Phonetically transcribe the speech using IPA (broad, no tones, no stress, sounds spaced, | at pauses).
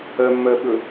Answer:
ɜ mː ɜ ɓ ɵ